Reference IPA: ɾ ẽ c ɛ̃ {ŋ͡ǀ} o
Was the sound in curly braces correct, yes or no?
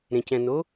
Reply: no